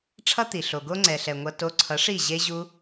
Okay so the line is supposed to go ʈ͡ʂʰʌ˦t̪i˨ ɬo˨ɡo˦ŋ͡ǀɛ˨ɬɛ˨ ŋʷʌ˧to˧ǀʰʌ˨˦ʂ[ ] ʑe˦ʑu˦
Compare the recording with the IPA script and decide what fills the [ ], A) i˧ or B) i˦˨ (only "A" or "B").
B